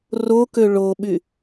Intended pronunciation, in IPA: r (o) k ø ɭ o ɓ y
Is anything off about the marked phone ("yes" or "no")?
no